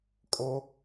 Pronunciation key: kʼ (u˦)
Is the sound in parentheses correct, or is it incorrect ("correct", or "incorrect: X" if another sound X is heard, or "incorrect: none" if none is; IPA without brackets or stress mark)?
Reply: incorrect: o˦